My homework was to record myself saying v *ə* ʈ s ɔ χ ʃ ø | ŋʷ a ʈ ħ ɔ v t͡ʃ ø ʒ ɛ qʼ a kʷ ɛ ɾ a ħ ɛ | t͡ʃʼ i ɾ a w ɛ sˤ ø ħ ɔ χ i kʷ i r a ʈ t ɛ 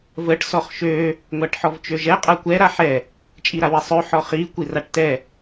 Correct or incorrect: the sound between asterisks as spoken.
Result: correct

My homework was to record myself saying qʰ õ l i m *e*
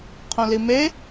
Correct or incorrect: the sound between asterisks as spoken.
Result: correct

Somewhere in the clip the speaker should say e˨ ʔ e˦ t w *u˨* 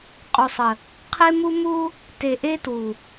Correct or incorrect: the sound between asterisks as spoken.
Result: correct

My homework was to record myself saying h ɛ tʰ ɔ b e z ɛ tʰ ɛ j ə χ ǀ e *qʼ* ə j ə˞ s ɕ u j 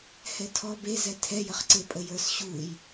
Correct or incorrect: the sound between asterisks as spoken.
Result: incorrect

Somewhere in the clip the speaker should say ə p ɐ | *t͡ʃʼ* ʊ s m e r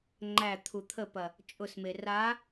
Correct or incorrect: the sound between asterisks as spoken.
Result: correct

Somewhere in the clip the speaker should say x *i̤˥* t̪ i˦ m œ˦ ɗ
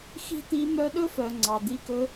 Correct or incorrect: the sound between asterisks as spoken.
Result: correct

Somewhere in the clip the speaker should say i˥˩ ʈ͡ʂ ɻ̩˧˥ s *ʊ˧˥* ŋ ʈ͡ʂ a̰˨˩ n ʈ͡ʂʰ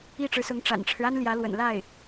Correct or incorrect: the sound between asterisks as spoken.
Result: correct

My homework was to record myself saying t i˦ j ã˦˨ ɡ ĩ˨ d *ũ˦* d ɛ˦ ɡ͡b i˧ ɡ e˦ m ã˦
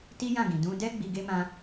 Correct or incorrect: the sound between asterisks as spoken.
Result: incorrect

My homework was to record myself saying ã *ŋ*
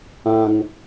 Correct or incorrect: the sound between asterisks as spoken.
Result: correct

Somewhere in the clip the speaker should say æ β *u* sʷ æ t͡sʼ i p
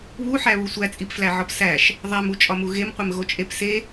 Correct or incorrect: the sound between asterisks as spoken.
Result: correct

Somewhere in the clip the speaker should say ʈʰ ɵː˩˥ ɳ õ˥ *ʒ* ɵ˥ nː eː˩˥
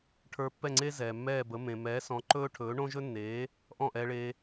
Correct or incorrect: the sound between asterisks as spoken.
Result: correct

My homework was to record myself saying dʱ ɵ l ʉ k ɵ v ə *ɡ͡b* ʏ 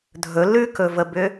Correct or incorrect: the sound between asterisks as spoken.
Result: incorrect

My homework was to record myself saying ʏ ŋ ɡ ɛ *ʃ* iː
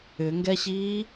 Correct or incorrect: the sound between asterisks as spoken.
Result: incorrect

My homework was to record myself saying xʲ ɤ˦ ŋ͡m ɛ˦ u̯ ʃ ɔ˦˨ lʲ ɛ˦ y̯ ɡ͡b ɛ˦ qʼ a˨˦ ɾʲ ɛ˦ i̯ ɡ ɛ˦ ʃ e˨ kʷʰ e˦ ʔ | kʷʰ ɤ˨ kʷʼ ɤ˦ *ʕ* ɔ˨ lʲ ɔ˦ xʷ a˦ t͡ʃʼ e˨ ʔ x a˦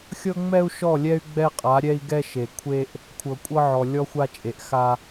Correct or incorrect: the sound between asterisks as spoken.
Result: correct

